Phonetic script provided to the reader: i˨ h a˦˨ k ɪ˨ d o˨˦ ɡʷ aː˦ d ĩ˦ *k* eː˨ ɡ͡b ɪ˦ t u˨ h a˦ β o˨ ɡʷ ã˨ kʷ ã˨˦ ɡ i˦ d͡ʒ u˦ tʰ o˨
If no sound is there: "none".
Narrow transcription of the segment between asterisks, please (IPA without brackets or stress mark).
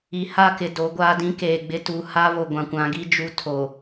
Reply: k